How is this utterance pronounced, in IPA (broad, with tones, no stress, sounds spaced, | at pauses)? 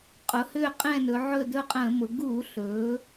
qʼ ʊ˩˧ h ʏː˦˨ qʼ ɛ̃˦˨ n ɵ˩˧ ʕ ɵ˦˨ d ɵ˦˨ qʼ ə̃ː˧˩˧ m ʊ˩˧ ɡ u˧˩˧ ɬ ɵː˩˧